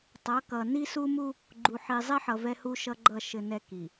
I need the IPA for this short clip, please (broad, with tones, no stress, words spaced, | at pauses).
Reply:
tˤʌ˨˦kʌ˨ ni˦su˦mu˦ | ɡ͡ǃu˨ħi˨zˤi˦ħʌ˨ vɛ˦hu˦ʃʌ˦ɡ͡ǃʌ˦˨ ʃɘ˦nɛ˦ki˨